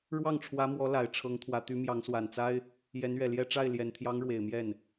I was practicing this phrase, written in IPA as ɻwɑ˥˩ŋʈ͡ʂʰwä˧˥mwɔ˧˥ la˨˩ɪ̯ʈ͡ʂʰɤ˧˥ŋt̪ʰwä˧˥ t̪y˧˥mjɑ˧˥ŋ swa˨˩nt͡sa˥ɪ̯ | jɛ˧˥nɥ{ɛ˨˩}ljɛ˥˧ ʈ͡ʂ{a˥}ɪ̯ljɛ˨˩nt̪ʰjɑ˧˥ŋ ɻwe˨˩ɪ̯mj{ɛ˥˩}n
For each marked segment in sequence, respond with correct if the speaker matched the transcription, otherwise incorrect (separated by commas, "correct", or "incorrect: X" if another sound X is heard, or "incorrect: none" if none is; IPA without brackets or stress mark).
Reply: correct, incorrect: a˥˩, correct